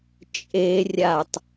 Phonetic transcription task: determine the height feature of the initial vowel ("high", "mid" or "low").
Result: mid